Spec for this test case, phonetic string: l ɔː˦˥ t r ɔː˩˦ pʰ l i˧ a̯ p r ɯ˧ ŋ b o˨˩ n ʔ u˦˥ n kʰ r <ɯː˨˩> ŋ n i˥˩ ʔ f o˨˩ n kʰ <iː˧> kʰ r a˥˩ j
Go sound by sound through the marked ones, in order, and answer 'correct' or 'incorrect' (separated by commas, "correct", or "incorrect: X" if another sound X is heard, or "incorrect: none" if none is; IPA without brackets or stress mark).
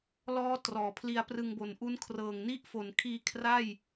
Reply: incorrect: ɤː˨˩, correct